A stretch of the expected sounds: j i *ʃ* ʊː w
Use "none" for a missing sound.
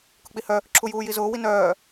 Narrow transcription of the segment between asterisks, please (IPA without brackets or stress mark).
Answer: z